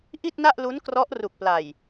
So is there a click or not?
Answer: no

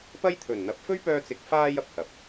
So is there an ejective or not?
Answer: no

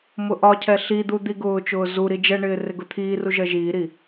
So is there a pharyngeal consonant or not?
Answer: no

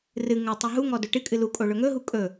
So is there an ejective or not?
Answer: yes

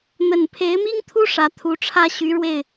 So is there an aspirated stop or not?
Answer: yes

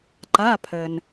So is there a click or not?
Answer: yes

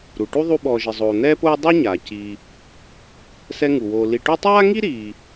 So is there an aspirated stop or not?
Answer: no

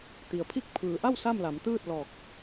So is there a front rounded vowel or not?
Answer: no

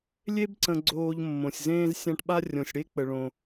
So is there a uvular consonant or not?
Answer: no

